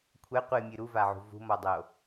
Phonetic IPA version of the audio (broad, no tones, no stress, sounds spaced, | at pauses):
kʷʰ ɛ qʷ ɨ mʲ ɨ ɾ u v a ʕ ṳ v ṳ m ɔ dˤ o